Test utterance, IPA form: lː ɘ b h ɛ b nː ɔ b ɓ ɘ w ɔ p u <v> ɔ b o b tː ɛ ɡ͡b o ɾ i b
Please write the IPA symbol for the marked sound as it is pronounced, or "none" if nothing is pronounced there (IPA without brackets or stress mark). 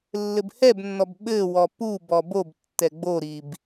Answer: b